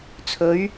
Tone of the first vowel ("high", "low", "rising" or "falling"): rising